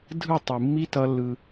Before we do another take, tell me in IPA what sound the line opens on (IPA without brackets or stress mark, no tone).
dʱ